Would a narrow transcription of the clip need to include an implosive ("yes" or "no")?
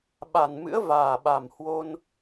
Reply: yes